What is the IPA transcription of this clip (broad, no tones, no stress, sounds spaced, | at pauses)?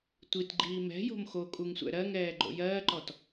tʷ i t ɡ͡ǃ iː m ɛ̤ j o̤ m x o kʼ u ŋ sʷ ɛ̰ ɾ ɜ ŋ ɛː ɡ͡ǃ o̰ j ɜː ǃ ɔ t